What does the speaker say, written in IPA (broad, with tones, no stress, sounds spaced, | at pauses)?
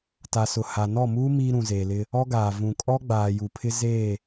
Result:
t a˨ s ʊ˨ h a˨ n ɔ˦˨ m uː˦ m iː˦ ɾ ũ˨ z eː˨ l ɪ˦ | ɔ˦ ɡ aː˨ v ũ˨ kʼ ɔ˦ ɡ͡b aː˨ j u˨ pʰ ɪ˦ z eː˦˨